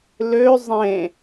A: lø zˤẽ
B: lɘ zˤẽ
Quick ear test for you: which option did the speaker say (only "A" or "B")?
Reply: A